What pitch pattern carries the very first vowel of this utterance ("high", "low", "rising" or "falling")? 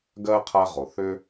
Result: high